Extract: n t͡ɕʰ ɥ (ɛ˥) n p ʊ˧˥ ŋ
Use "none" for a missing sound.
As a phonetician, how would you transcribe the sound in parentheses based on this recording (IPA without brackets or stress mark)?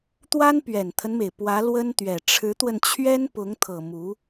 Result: ɛ˥